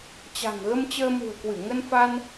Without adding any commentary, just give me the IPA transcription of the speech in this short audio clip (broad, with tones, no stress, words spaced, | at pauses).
t͡ɕa̤˨˩ŋɣə˧m t͡ɕəː˧mṳ˨˩ə̯kwɨ˧˩ ŋə˧nfa˧n